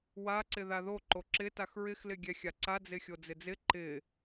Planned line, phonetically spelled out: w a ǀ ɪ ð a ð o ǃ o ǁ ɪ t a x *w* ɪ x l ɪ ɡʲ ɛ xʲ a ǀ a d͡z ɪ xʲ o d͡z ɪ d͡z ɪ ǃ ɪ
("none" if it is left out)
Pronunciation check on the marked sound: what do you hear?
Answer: ɹ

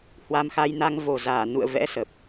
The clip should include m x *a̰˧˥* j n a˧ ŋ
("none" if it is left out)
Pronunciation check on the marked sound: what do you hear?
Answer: a˧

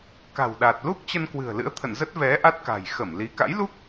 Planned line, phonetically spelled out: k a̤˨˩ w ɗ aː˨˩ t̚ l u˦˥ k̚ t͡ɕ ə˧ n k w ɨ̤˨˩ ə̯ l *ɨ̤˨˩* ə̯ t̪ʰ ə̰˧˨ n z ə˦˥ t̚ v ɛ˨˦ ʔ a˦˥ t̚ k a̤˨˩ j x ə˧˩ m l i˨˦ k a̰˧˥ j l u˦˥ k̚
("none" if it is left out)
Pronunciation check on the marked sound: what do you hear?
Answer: ɨ̰˧˥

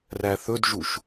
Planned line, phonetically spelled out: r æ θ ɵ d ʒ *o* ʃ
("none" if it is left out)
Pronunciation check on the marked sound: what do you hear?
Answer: u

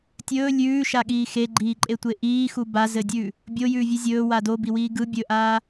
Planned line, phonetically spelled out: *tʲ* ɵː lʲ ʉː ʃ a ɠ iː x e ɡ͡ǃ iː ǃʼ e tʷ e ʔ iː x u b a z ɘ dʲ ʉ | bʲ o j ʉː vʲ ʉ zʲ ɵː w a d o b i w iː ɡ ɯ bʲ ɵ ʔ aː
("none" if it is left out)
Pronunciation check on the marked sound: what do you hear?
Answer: tʲ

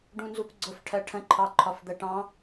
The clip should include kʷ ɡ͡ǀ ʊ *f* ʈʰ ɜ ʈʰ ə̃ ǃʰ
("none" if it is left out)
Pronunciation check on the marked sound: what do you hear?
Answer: f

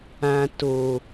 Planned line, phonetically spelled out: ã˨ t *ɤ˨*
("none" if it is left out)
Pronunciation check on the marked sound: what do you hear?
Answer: o˨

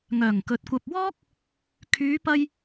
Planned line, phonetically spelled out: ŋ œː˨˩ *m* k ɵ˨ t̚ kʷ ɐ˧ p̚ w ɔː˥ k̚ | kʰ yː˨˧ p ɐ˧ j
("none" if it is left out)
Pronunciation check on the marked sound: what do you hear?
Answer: ŋ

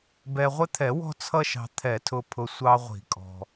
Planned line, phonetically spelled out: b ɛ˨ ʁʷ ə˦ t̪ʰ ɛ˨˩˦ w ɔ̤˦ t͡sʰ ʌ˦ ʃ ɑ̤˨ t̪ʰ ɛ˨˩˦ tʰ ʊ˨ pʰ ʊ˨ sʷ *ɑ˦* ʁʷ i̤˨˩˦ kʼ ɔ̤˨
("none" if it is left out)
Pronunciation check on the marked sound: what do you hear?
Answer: ɑ˦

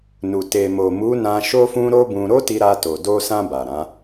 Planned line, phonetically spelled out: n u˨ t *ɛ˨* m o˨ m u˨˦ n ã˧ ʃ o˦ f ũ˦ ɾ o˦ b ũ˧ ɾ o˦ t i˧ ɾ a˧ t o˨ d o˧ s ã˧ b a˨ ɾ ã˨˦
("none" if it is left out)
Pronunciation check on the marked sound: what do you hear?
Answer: e˨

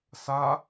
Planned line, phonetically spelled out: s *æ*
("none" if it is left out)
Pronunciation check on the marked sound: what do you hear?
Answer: a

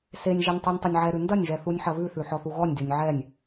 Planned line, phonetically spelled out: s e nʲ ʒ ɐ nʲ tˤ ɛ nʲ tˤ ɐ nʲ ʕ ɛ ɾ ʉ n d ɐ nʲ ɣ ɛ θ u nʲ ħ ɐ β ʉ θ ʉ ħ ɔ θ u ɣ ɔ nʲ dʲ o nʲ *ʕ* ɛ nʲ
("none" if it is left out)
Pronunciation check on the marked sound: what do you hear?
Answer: ʕ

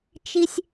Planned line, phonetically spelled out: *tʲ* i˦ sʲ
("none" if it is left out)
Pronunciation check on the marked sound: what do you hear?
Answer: t͡ʃ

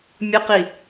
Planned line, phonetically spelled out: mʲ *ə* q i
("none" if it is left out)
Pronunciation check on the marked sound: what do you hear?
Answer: ə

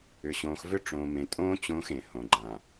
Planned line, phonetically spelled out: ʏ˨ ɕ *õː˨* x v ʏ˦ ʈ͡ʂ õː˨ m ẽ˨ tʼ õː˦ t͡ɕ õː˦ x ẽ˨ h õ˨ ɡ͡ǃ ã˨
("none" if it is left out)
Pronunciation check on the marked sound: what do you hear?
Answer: õː˨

